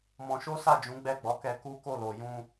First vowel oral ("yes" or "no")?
no